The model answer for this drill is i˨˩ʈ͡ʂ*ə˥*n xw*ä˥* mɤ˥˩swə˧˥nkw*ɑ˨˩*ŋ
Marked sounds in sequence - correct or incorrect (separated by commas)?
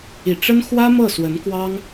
correct, correct, incorrect